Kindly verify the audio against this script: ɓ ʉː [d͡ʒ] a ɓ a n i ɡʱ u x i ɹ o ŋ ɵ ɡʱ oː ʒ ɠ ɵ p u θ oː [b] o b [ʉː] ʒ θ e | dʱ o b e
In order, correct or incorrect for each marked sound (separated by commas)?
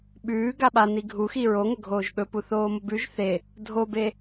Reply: incorrect, incorrect, incorrect